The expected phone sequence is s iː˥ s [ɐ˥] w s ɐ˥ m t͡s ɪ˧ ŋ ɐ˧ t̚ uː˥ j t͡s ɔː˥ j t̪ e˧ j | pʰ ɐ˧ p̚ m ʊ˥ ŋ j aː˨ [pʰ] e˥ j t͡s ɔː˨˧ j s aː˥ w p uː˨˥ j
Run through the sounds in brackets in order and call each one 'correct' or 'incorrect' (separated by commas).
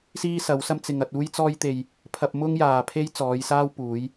incorrect, correct